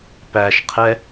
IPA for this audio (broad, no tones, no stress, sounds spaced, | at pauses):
p æ ʃ qʰ ɛ